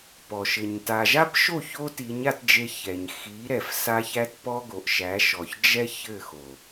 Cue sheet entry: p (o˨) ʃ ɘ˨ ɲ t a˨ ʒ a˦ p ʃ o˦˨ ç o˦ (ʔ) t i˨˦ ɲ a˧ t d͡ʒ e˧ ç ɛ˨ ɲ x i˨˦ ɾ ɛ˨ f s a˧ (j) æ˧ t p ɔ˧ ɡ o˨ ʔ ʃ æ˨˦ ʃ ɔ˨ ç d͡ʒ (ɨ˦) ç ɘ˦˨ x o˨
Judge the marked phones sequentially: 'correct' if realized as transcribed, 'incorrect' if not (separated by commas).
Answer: incorrect, incorrect, incorrect, incorrect